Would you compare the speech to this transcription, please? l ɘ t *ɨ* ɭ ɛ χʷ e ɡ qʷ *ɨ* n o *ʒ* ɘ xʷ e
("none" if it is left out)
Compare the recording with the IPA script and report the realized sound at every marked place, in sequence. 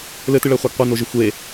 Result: ɨ, ɛ, ʒ

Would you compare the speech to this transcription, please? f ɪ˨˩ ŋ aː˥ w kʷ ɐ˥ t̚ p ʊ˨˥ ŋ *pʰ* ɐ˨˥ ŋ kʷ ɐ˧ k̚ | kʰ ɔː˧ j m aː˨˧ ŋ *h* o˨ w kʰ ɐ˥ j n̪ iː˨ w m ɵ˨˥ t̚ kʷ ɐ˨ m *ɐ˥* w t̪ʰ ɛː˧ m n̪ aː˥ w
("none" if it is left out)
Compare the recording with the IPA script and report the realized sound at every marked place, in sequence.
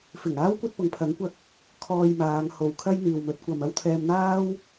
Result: pʰ, h, ɐ˥

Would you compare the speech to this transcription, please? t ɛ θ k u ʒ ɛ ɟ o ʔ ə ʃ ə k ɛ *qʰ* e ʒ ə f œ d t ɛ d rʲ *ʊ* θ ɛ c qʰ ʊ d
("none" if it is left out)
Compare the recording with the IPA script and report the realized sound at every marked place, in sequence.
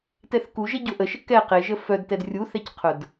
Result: q, u

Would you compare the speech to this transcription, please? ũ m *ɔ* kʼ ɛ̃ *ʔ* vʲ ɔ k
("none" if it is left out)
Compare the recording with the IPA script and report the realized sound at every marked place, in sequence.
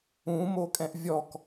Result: o, ʔ

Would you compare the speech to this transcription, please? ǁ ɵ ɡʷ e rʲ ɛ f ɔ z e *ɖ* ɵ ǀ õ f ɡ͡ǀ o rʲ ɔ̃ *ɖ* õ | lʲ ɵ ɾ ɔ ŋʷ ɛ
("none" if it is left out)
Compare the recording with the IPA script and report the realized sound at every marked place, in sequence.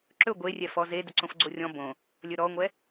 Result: d, b

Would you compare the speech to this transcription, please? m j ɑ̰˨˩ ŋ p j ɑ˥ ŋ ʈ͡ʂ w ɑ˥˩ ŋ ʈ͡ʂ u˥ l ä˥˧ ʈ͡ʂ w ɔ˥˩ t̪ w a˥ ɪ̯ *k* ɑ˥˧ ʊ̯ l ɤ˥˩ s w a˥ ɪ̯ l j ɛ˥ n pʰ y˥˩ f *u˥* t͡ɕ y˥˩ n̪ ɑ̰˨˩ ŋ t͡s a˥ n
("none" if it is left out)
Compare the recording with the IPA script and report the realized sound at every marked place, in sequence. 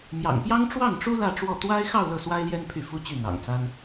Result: x, u˥

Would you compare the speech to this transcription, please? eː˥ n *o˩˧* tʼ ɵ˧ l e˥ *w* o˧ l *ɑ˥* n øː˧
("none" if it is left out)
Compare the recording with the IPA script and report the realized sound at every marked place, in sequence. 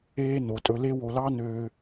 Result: o˩˧, w, ɑ˥

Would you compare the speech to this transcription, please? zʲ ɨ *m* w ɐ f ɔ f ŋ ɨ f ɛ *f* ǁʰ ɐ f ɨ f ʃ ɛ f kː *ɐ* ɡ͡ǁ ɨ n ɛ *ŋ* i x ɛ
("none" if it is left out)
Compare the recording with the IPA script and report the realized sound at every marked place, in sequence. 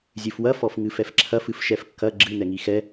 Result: f, f, ɐ, ŋ

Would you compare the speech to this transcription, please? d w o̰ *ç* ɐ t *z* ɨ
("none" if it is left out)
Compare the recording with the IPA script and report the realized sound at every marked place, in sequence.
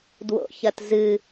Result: ç, z

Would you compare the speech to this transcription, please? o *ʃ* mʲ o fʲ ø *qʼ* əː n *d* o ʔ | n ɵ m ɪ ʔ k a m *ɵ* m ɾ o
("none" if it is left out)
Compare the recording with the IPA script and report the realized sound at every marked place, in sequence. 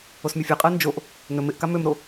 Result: s, qʼ, d͡ʒ, ø

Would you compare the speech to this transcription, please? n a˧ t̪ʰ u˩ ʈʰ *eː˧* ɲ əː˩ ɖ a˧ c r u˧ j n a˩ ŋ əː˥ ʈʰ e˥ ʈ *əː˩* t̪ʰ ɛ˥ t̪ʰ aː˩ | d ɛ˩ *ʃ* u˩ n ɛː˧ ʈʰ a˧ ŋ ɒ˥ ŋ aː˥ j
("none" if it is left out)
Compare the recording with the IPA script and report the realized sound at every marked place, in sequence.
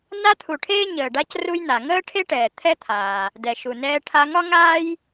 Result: eː˧, ɛː˩, ʃ

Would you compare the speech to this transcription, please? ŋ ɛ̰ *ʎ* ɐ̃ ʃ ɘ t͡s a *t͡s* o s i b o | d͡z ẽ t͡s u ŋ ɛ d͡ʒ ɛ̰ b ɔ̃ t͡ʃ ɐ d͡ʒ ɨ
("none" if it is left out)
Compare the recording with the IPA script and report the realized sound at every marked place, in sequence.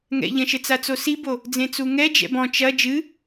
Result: ʎ, t͡s

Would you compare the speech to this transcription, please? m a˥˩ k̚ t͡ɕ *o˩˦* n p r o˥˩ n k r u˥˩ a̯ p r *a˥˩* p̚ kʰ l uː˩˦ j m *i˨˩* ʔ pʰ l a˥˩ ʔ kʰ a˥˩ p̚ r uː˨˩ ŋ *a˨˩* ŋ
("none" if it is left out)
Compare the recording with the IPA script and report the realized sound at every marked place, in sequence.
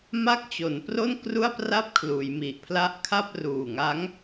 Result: o˩˦, a˥˩, i˨˩, a˦˥

